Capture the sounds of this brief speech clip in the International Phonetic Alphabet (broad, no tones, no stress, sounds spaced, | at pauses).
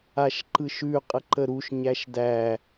a ʃ ǃ ɯ ʃ ʉ qʼ ə ǃ ə ɾ u ʃ ɲ æ ʃ d æ